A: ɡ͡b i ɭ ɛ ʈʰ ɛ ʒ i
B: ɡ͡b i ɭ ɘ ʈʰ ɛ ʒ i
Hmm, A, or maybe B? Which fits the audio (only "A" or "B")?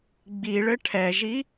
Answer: B